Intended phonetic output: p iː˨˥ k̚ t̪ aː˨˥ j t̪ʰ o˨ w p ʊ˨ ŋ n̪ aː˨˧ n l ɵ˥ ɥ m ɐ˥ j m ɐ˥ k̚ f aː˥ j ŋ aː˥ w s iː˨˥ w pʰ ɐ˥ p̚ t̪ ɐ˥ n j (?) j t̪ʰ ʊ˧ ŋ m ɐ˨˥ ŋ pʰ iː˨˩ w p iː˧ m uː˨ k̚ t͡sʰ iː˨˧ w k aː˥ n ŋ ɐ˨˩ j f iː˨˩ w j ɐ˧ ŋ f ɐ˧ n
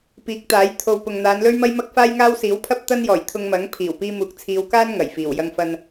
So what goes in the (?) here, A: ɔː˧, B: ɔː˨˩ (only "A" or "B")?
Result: B